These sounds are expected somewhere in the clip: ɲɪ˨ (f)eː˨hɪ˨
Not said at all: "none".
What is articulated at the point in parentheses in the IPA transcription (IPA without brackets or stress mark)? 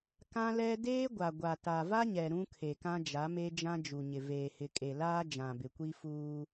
v